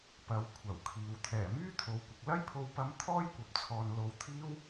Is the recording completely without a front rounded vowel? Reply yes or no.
no